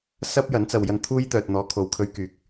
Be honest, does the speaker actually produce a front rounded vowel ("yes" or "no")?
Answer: yes